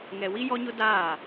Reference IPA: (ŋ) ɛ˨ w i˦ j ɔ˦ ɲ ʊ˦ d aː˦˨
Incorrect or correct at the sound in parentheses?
correct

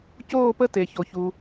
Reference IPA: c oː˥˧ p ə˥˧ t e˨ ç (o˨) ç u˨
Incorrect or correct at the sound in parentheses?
correct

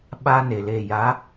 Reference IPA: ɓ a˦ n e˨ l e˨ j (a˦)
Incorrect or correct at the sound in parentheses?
incorrect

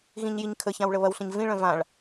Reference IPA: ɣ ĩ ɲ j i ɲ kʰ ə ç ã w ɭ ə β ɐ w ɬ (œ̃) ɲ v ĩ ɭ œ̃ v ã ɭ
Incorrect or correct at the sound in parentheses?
incorrect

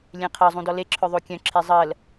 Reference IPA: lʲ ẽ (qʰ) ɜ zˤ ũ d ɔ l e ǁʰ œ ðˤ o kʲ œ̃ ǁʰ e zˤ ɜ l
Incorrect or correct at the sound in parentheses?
correct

